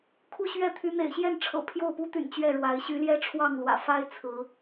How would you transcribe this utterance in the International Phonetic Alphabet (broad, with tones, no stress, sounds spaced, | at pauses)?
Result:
kʰ u˦ ɕ ɥ ɛ˥˨ t̪ʰ y˨˦ n̪ ḛ˨˩ ɪ̯ ɕ j ɛ˥˨ n ʈ͡ʂʰ ɤ̰˨˩ pʰ j o˥˨ ʊ̯ p u˦ t̪ y̰˨˩ n t͡ɕ ɥ ɛ˥˨ ɻ w a˨˦ ɪ̯ ɕ y˨˦ l j ɛ˦ ʈ͡ʂʰ w ɑ˥˨ ŋ l w ä̰˨˩ f a˦ ɪ̯ t͡sʰ ɹ̩˨˦